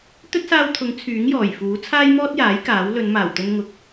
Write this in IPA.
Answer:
t̪ɵ˥t̚saː˧wt̪ʰʊ˨˥ŋ t͡sʰyː˨˥ŋjɔː˨˩jfuː˨˥ t͡sʰaː˥jmɔː˥t̚jaː˨˥j kaː˨˥w lɵ˨˧nmaː˨˩wt̪ɵ˧nŋʊ˨˥k̚

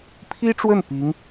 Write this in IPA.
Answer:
pʰi˥ʈ͡ʂwə˥˩n pi˧˥ŋ

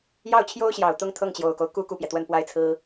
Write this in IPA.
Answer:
jɑ˥˩ʊ̯t͡ɕʰjo˥ʊ̯ɕjɑ˨˩ʊ̯ t̪ʊ˥˧ŋ t̪ʰɤ˥˩ŋt͡ɕjo˨˩ʊ̯ko˦ʊ̯ku˥ ku˥˩pjɛ˩t̪wə˥˧n pwa˥˩ɪ̯t͡sʰɹ̩˥

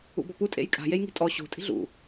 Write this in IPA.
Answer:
ṵbɔpu tʼḛjkʼa̤ jejŋi̤tʼɔ ɕo̤ tʼi̤ɮṵ

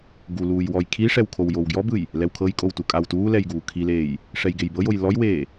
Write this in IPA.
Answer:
ɡuluːj wɔjkʰiʂɛw kʰowjowɡjɔbɯj | lɛwkʰɤjkʼow tukʼawtuːlɛj ɡuːkʰileːj | ʂɛjɡejbɤjoj lɔjweː

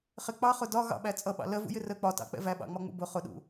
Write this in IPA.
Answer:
χɪ k͡pɑχʊ dɒ ɣɑ̰ɓæ t͡sʼʌɓɑ̰ lɜvṵjɪ rə k͡pɒtɑ̰k͡pɛ̰ væɓɑ̰ŋ͡mɒŋ͡mṵ bʊ χʊɗṵ

